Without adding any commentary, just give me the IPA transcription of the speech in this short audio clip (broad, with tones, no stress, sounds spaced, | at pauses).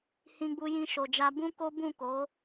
h ĩ˧ ɡ͡b u˧ j ĩ˧ ʃ o˨ d͡ʒ a˧ b ũ˦ k o˦ b ũ˦˨ k o˨˦